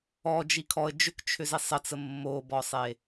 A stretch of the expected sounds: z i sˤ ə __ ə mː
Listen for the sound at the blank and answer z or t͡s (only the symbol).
t͡s